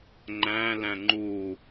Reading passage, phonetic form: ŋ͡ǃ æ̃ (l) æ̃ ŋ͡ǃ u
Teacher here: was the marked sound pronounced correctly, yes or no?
yes